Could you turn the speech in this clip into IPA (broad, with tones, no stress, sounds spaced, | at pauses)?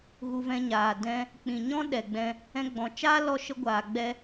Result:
ɣ u˧ v ɛ̃˧ ɲ aː˨ d ɛ̃˦ | k͡p ĩ˨ ɲ ɔ̃˦ ɗ ɛ˨ ɡ͡b ɛ̃˧ | ɛ̃˧ ɡ͡b ɔ̃˨ t͡ʃ aː˦ l ɔ˧ ʃ ə˧ ɡʷ aː˨ ɡ͡b ɛ˧